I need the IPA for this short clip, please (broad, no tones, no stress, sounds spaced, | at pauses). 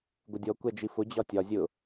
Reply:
ɡʷ ɪ dʲ ɔ kʷ ɛ d͡ʒ i f ʊ d͡ʑ ɒ tʲ ɒ zʲ ʊ